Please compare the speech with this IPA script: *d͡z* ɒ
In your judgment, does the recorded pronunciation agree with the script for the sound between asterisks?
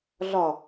no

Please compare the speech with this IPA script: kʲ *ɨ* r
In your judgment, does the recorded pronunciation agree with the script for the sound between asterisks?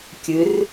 yes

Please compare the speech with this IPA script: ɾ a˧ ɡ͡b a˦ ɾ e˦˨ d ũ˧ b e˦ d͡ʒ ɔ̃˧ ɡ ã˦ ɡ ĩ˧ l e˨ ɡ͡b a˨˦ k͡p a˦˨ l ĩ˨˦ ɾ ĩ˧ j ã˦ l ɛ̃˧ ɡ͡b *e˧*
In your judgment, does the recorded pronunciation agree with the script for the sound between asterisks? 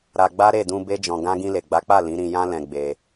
yes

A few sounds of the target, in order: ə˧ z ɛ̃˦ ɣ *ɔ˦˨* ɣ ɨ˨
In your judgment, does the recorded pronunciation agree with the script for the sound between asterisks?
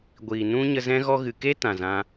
no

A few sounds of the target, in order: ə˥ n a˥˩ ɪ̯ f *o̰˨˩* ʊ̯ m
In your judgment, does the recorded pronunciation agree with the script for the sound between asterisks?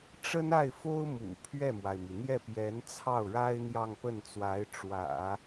no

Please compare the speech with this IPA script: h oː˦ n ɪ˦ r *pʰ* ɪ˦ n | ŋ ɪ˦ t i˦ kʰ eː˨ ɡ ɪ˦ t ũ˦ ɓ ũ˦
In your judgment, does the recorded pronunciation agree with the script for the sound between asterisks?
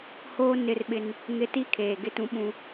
no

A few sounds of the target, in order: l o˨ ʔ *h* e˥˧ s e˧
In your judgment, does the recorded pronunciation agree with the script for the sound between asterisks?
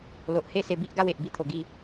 yes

